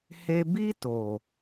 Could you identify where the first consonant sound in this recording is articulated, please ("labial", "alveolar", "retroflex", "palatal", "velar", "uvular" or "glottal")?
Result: glottal